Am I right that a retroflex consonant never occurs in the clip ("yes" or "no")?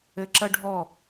no